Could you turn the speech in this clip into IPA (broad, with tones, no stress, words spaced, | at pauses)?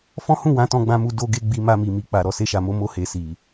fɔ̃˦hũ˦˨ wã˨˦tɔ̃˧ɡ͡bã˧mu˧ do˧ɡe˧ ɡ͡bi˧ma˧mi˨ mi˨k͡pa˨ ɾɔ˨se˧ʃa˨mo˧ mo˧he˨ si˨